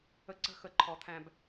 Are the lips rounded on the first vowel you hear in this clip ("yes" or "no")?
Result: no